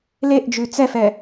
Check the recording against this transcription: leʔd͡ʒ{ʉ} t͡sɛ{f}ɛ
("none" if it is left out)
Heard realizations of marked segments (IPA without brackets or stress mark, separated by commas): ʉ, f